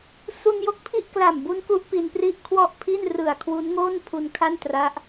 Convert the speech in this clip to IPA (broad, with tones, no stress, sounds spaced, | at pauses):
s u˧ n j o˦˥ k̚ pʰ i˥˩ ʔ k l a˨˩ m b u˦˥ n k u˦˥ ʔ p i˧ n p r i˥˩ ʔ kʰ w ɔ˥˩ ʔ pʰ i˥˩ n r ɯ˨˩ a̯ kʰ w u˦˥ n ŋ oː˥˩ n pʰ u˧ n kʰ a˥˩ n t r a˦˥ ʔ